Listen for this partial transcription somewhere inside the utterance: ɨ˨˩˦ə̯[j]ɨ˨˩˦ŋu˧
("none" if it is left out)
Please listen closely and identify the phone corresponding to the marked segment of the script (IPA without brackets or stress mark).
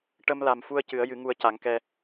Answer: j